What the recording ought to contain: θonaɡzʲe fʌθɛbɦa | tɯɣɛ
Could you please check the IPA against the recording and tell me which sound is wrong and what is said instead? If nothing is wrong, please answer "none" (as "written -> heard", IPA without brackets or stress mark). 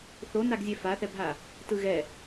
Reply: ʌ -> a